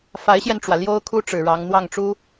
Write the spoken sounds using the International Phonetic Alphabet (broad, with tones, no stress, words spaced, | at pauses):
fa˧˥ɪ̯ɕjɛ˧nʈ͡ʂwä˩ ljo˥ʊ̯kʰu˥ ʈ͡ʂɻ̩˨˩ɻɑ˧˥ŋ n̪wɑ˥˩ŋʈ͡ʂu˥